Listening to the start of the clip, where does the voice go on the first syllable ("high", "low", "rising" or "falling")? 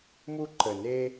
high